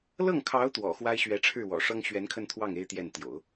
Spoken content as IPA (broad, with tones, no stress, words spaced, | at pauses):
lɤ˥˩ŋkʰɑ˧˥ʊ̯ t̪wɔ̰˨˩xwa˥ɪ̯ ɕɥɛ˧˥ʈ͡ʂʰɻ̩˥˩wɔ̰˨˩ʂɤ˥ŋ ɕɥɛ˧˥nkʰə˥˧nt̪ʰwɑ˥˩ŋ e˥ɪ̯t̪jɛ˥˩nt̪jo̰˨˩˦ʊ̯